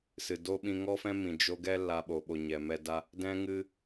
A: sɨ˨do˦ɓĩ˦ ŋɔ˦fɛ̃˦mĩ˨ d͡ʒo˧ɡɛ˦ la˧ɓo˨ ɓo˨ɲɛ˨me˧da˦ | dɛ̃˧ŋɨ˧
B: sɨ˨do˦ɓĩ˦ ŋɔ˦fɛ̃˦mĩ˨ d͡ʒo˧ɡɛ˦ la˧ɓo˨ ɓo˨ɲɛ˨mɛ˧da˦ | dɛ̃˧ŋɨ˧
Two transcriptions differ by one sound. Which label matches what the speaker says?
B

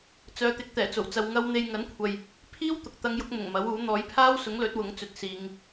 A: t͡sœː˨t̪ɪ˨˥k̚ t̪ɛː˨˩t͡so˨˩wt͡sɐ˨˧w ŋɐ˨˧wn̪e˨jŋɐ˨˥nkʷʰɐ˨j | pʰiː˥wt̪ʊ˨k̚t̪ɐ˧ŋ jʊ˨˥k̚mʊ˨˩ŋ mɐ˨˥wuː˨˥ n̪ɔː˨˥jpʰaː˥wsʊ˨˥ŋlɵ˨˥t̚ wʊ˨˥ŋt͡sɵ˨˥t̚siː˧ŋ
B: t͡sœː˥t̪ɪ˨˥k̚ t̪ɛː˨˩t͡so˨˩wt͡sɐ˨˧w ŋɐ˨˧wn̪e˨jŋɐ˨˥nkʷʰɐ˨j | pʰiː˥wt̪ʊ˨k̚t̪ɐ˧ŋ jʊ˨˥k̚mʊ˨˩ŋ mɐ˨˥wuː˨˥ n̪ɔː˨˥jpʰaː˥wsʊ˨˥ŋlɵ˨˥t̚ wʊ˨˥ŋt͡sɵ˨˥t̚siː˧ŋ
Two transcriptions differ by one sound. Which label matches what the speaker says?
A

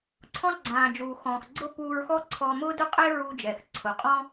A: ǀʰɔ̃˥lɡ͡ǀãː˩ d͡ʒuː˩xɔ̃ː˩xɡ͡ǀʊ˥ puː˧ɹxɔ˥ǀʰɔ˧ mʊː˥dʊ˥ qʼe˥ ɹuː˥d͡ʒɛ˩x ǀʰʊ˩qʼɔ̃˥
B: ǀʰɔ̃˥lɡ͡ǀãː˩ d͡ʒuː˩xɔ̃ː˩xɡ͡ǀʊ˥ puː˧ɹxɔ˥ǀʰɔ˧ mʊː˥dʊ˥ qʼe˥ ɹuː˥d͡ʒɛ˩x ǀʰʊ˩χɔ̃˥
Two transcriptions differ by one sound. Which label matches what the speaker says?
A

